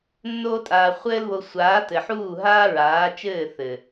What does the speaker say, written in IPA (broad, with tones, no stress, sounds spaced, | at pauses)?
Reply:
nː oː˦ tʼ aː˧ χʷ ɘː˦ l β o˧ sʷ aː˨˦ t ɘ˨ ħ uː˦˨ ɦ aː˦ ɹ aː˨˦ t͡ʃ ɘː˦˨ θ ɘ˨